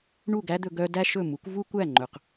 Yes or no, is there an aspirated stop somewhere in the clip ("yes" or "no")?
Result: no